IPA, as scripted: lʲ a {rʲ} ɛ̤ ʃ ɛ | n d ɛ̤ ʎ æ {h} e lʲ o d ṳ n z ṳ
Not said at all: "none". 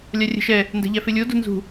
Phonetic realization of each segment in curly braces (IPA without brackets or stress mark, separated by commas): rʲ, f